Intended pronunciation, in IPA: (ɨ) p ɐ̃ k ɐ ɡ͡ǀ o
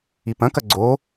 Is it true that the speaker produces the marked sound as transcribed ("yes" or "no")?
no